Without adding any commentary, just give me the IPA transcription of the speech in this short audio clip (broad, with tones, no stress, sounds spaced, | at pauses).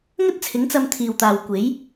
ŋ ɵ˥ t̚ t͡sʰ ɪ˨˥ ŋ t͡s ɐ˧ m t̪ʰ iː˨ w t̪ aː˨ w kʷ e˨˥ j